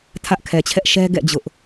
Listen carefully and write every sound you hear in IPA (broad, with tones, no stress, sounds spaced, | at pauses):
tʰ ä˦ ʔ kʰ ɛ˨ t͡ɕʰ ɛ˦ ʔ ʃ ɛ˦ ɡ ɛ̰˦˨ d͡ʑ ʊ˦ ʔ